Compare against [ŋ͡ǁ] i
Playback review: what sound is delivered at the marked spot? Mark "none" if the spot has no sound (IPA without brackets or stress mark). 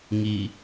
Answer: ŋ